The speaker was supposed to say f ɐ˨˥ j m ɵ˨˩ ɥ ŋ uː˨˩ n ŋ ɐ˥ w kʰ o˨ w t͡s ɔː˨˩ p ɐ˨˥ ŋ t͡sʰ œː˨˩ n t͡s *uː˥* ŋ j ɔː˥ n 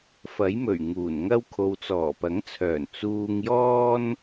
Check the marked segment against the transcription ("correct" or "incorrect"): incorrect